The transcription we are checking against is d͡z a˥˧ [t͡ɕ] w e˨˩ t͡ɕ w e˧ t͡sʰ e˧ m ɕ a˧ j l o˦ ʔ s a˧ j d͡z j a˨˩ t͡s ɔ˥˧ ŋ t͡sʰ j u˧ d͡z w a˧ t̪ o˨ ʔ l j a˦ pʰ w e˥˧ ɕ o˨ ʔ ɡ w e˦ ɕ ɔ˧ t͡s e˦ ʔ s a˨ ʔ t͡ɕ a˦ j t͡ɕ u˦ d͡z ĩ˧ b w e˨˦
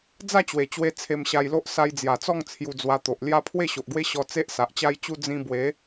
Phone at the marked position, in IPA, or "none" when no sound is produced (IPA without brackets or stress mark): t͡ɕ